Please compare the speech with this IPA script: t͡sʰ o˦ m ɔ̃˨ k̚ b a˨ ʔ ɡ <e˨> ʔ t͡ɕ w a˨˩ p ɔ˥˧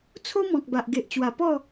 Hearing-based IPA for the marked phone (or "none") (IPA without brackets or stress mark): e˨